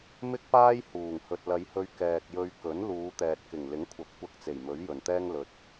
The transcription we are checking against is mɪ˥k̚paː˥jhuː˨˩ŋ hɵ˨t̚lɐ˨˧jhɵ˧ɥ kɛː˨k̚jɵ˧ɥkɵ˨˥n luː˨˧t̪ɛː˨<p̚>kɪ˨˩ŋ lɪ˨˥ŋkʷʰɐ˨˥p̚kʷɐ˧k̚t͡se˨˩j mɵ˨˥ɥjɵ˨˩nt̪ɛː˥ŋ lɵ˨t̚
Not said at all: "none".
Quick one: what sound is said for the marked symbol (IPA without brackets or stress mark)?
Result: t̚